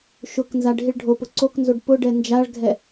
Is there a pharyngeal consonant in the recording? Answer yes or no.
no